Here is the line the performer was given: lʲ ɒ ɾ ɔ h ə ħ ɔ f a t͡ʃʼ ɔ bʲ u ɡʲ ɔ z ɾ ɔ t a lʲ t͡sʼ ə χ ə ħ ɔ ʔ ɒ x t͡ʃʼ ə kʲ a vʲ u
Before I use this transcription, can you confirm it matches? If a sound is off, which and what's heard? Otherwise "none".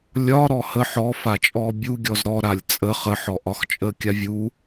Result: t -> ɾ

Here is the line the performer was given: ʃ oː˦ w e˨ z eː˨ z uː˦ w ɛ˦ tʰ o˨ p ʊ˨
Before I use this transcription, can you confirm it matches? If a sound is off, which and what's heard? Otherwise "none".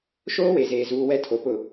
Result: none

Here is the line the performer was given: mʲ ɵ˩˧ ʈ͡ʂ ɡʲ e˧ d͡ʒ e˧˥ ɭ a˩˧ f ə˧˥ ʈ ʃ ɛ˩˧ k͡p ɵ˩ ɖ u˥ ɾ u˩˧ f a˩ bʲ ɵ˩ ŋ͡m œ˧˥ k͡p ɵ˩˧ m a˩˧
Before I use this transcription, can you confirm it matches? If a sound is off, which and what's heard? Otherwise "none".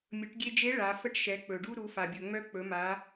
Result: ʈ͡ʂ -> ʈ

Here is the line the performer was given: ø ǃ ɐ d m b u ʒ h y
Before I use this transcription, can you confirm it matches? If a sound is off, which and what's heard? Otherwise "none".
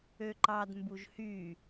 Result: ɐ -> ɑ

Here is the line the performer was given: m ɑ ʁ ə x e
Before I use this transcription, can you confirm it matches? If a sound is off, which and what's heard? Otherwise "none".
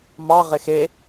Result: ə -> ɪ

